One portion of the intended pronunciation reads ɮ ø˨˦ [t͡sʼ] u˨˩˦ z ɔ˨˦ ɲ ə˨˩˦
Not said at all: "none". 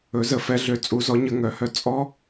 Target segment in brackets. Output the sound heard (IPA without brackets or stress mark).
t͡sʼ